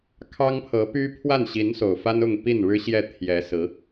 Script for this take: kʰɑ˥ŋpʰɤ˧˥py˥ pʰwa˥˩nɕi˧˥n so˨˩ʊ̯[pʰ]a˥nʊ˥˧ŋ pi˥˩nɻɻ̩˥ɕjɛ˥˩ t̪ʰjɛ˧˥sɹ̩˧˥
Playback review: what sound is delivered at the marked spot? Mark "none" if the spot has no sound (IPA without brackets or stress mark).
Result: f